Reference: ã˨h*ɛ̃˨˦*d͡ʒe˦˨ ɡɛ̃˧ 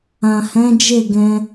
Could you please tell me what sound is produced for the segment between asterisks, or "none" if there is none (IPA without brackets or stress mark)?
ɛ̃˨˦